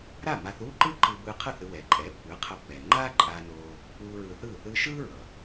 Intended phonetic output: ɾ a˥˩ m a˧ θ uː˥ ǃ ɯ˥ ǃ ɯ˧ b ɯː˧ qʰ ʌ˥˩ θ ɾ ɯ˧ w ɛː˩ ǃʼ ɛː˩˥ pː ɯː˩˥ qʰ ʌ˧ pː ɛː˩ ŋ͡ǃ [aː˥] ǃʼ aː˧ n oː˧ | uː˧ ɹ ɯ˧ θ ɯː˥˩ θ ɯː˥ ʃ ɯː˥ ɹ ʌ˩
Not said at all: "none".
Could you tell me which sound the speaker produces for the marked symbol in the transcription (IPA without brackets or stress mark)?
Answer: aː˥